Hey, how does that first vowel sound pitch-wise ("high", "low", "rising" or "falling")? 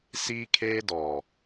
high